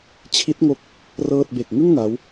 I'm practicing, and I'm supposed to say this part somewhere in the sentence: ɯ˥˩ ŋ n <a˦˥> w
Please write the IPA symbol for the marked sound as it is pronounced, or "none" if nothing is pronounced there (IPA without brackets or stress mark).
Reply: a˦˥